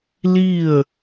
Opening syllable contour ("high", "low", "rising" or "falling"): falling